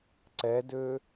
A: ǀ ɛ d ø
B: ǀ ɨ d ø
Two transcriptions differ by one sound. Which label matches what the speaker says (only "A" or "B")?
A